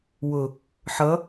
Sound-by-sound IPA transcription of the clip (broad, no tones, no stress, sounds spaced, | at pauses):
w ʊ | ħ ʌ